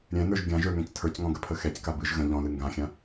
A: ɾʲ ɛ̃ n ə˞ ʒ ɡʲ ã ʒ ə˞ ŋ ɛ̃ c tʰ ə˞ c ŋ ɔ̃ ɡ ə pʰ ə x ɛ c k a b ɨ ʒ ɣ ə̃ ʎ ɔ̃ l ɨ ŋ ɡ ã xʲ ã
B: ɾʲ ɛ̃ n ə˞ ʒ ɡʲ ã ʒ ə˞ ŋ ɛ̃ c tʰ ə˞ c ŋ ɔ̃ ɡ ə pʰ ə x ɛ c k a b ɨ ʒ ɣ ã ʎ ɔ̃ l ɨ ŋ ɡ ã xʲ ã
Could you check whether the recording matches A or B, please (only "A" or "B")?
A